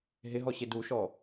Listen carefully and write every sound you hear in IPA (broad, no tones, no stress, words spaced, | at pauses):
ɦɪɦɔɕe duʃɔ